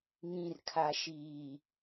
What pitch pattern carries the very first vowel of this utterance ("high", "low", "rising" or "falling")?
low